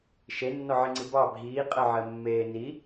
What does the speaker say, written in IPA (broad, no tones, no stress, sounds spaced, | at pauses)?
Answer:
ʃ e nː ɔ ʕ i ŋ͡ǀ i b ɑ bʱ iː qʼ ɜ ʕ ɜ mː eː n i